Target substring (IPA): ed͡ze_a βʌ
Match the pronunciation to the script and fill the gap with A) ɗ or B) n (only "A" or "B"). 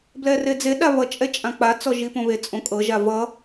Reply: A